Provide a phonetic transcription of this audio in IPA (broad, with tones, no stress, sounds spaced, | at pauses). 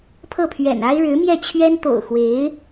pʰ ɤ˥˩ pʰ ɥ ɛ̰˨˩ n a˥ ɪ̯ ɻ ɻ̩˧˥ m j ɛ˥˩ t͡ɕʰ ɥ ɛ˥ n t̪ o̰˨˩ ʊ̯ x w e˧˥ ɪ̯